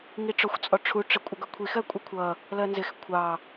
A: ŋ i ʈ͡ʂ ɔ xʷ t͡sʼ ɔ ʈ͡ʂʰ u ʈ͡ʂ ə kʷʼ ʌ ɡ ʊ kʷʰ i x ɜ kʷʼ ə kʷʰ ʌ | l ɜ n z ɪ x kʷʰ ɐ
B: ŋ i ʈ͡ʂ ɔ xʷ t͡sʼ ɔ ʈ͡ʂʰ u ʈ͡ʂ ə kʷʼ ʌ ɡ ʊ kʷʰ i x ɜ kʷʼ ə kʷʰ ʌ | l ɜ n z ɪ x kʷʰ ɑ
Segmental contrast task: B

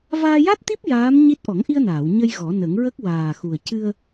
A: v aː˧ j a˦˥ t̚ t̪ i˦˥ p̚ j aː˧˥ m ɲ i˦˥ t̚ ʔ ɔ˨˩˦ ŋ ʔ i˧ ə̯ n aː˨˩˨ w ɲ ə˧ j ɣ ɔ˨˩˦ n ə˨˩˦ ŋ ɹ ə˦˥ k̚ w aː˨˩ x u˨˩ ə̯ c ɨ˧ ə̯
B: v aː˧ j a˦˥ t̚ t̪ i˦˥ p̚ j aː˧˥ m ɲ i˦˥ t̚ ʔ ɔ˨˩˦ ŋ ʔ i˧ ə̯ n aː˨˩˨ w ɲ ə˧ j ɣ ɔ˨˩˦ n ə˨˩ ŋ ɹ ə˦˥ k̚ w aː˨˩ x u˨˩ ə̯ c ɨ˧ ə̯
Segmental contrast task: A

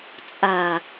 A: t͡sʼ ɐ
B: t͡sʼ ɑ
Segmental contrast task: A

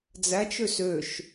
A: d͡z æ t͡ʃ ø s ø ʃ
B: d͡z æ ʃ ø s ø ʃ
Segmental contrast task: A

